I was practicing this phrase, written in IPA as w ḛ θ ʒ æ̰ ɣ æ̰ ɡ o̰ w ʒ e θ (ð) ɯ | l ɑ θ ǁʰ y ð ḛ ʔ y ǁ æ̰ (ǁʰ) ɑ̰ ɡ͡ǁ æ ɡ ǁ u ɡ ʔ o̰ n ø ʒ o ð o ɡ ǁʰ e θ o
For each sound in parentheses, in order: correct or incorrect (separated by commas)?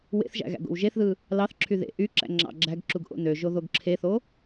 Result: correct, incorrect